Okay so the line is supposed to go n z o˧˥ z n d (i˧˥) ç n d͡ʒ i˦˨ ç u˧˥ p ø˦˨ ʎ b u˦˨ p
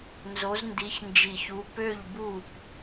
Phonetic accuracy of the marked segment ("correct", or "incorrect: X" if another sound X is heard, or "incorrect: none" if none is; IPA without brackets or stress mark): correct